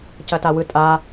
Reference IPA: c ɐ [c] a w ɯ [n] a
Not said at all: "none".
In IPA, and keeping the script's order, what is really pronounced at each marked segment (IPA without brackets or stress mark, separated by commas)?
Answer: t, tʼ